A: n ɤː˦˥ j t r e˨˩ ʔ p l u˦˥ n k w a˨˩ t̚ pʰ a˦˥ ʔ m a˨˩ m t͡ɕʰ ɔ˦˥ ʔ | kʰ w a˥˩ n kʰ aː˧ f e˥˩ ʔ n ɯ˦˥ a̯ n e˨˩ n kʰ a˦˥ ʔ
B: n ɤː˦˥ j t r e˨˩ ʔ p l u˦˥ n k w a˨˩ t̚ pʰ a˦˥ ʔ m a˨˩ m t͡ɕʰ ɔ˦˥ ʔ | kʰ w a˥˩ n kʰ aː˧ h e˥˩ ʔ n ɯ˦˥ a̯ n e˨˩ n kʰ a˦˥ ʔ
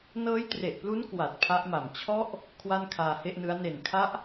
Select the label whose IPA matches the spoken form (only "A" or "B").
B